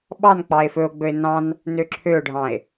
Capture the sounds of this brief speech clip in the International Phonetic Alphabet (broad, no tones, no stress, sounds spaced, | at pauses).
ɓ ɑ n k͡p ɑ e̯ f ɵ o̯ ɡ͡b ɵ e̯ n ɑ̃ n | n ø ǁʰ ø o̯ ɖʱ ɑ̃ e̯